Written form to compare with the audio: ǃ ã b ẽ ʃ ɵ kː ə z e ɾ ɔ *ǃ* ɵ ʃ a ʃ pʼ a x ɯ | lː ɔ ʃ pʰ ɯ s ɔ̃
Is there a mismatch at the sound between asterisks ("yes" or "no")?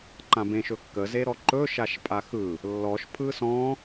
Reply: no